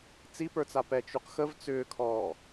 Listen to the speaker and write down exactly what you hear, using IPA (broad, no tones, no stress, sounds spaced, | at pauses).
t͡s i p ə˞ t͡s a p ɛ t͡ʃ u q x ə v t͡s ʏː kʰ ɔː